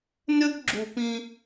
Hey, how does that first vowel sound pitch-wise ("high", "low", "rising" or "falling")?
high